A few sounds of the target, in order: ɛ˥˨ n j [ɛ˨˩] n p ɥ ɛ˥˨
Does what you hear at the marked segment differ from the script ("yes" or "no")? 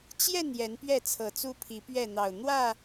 yes